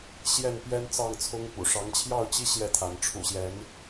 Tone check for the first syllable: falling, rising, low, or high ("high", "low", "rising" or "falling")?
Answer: falling